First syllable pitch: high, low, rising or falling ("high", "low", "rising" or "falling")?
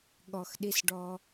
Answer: low